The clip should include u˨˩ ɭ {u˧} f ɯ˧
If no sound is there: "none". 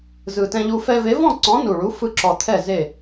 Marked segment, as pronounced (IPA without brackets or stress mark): u˨˥